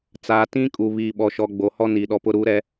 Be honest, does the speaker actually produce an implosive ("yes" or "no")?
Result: yes